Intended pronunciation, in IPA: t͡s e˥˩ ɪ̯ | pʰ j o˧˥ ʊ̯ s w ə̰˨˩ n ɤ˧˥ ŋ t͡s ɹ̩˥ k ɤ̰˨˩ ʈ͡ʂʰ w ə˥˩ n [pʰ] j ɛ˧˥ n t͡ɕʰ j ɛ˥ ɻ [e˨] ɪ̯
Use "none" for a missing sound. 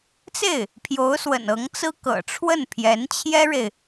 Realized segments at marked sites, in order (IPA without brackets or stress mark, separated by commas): pʰ, e˨